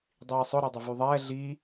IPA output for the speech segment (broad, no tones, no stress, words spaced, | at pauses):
dˤiːsˤʊ ɾydˤʏvyðˤɛː ɮiː